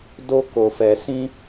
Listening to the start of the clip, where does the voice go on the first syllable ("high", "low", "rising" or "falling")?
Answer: high